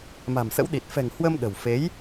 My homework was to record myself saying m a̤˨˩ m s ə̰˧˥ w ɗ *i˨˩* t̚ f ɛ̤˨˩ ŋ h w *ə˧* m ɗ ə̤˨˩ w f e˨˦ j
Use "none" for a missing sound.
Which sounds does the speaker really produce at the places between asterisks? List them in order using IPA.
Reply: i˨˩, ə˧

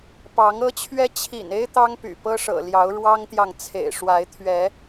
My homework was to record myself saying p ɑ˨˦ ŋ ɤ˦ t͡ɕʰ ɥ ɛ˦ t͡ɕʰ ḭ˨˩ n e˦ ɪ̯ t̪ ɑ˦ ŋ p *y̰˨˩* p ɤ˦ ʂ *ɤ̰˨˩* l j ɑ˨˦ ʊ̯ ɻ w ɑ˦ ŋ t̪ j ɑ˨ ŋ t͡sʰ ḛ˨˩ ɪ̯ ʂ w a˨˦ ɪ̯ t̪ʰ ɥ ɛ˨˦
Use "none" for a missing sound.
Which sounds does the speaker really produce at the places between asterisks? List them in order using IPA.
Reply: y̰˨˩, ɤ̰˨˩

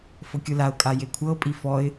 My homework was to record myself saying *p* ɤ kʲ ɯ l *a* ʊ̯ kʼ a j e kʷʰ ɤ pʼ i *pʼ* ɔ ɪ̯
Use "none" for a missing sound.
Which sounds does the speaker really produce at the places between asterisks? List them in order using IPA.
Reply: f, a, f

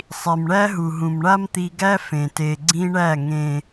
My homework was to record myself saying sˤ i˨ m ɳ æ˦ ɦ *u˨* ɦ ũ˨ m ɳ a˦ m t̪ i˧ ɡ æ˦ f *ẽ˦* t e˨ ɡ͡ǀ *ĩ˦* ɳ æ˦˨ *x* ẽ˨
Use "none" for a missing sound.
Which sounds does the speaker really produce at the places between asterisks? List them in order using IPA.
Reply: u˨, ẽ˨, ĩ˦, ŋ

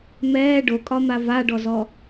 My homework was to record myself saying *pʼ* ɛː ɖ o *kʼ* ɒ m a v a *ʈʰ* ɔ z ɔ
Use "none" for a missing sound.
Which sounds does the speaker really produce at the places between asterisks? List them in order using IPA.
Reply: m, kʼ, ɖ

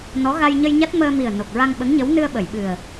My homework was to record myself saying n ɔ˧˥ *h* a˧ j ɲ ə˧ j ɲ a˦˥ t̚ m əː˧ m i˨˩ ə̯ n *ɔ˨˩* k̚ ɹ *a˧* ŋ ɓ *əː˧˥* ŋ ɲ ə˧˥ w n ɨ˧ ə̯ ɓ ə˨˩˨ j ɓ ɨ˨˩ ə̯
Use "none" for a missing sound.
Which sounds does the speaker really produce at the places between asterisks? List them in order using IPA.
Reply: ɣ, o˨˩, a˧, ə˧˥

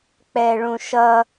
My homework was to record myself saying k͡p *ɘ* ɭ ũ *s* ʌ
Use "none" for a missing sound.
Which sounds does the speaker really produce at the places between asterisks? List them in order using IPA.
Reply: ɛ, ʃ

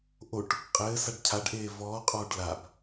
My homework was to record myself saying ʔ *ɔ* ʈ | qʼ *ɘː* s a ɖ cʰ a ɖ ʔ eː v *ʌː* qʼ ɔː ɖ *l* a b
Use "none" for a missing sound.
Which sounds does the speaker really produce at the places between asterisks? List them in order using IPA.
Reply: o, ɘː, ɔː, l

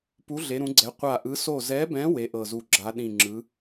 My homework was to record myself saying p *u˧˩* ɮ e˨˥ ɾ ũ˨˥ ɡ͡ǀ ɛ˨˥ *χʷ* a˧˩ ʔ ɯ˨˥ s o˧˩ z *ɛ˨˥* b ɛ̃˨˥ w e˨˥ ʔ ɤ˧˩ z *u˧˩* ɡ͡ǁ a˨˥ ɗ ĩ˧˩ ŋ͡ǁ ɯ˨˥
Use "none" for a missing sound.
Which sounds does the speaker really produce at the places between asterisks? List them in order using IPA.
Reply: u˨˥, qʷ, ɛ˨˥, u˧˩

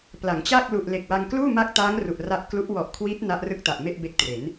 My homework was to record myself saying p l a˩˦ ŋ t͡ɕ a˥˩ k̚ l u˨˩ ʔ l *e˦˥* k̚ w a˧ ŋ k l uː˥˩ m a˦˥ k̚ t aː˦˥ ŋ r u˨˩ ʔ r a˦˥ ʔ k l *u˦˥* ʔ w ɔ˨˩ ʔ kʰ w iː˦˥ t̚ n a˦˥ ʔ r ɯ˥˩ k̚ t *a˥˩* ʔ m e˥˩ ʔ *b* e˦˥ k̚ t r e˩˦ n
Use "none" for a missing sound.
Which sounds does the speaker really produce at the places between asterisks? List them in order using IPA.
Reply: e˨˩, u˦˥, a˨˩, b

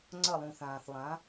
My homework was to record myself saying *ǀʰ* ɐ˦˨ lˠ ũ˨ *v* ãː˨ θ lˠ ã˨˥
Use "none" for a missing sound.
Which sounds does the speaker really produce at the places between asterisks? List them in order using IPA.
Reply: ŋ͡ǀ, θ

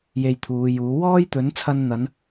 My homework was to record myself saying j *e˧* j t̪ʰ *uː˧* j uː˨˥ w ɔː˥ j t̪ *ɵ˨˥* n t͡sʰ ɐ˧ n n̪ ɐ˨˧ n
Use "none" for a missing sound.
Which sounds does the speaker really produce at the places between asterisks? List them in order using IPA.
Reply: e˧, uː˨˧, ɵ˨˥

